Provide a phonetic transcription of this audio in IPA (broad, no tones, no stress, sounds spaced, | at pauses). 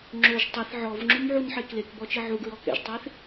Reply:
ŋ͡ǁ o ʒ tˤ i θ ʕ ɔ v ŋ͡ǁ u m ʕ u n ħ e k l e k b ɔ t͡ʃ i ʕ u ɡ ɹ ɔ k ɛ̰ ʒ tˤ e θ